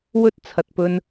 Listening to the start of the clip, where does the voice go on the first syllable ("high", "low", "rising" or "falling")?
high